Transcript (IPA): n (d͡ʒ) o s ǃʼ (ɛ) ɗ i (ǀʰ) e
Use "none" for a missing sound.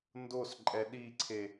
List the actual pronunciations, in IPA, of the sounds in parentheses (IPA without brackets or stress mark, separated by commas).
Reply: d, ɛ, ǀʰ